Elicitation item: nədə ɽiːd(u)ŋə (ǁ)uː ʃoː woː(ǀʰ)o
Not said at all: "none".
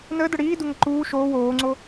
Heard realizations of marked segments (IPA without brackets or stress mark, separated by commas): u, ǃ, ŋ͡ǀ